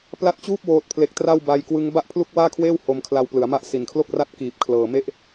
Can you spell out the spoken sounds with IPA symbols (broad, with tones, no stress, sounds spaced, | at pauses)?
p l a˦˥ t̚ t͡ɕ uː˥˩ p̚ w oː˦˥ t̚ pʰ l e˦˥ k̚ t r a˥˩ w b a˧ j k w ɯ˦˥ ŋ b a˥˩ ʔ pʰ l u˥˩ k̚ w aː˥˩ kʰ w eː˥˩ w h o˧ m kʰ l a˧ w p l ɯ˩˦ a̯ m a˥˩ ʔ s i˨˩ n kʰ l o˥˩ k̚ r a˥˩ t̚ k iː˨˩ p̚ kʰ l ɤː˨˩ m e˦˥ ʔ